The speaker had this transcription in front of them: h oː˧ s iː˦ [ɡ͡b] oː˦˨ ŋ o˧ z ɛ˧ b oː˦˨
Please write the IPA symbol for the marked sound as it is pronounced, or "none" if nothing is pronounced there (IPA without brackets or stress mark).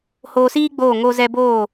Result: ɡ͡b